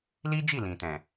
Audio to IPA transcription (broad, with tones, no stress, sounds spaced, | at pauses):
l i˦ d͡ʒ i˦˨ l ĩ˨ t ɛ̃˨